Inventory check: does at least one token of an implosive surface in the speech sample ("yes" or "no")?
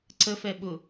yes